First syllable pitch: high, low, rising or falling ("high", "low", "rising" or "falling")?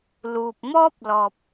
low